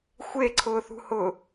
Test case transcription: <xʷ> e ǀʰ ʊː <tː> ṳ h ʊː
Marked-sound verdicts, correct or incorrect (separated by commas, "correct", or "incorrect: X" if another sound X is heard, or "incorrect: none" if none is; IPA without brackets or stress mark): correct, incorrect: θ